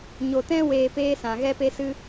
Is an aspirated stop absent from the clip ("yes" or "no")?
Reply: yes